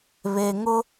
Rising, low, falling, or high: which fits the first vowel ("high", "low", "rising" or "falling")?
low